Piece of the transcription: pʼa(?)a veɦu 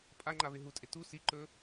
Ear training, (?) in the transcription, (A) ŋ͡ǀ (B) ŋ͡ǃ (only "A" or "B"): B